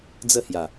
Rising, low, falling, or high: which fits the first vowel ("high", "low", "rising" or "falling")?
falling